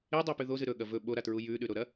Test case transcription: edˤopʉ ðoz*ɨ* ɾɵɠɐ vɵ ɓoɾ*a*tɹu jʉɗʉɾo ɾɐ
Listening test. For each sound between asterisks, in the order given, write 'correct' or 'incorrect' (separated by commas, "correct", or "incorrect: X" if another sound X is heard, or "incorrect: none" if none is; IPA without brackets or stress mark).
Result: correct, correct